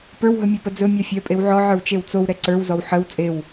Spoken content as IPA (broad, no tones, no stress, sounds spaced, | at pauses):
p ə˞ w ɦ ɵ mʲ e p ə d͡z ɵ mʲ a fʲ œ pʼ e w ʕ ɔ ʕ ə˞ w t͡ʃ e w t͡s o w ɾ ɛ ǀ ə˞ w z ɔ w ħ ə w t͡sʼ e w